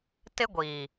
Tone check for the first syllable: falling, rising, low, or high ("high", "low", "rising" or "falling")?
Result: high